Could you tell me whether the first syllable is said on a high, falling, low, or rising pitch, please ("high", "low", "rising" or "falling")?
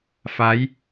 rising